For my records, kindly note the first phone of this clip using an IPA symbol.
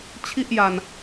t͡ɕʰ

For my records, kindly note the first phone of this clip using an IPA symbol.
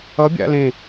ʌ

